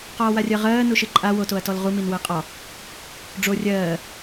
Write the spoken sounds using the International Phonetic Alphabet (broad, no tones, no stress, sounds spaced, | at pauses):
q ɒː w a rʲ ɜ ʁ ɜː n u ʃ ɨ ǃʼ a w o t o ɐ̯ t ɔ l ʁ u m i n w ɜ qʼ ɒ | ɖ͡ʐ o rʲ ɜː